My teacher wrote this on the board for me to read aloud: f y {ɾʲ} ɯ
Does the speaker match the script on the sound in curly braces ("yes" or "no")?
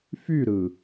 no